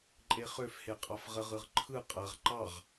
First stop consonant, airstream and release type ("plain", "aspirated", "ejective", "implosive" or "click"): click